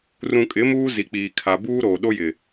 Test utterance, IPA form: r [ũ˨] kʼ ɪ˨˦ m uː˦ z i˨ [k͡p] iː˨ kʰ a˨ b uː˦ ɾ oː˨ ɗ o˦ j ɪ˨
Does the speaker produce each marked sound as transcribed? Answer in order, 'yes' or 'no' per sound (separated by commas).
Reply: yes, yes